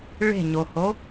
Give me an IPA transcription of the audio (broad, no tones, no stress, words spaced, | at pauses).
ɭe̤ɲoho